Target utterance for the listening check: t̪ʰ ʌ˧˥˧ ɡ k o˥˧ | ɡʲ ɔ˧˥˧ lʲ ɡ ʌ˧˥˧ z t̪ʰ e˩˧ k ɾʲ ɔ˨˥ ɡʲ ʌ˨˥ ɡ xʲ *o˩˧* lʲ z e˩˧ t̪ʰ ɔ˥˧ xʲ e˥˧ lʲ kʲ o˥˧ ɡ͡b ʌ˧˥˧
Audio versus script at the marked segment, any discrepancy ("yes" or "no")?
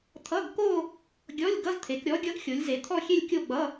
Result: no